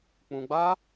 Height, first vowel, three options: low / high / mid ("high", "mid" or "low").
high